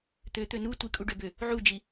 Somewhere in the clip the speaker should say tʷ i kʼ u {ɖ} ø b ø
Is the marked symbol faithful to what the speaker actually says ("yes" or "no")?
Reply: yes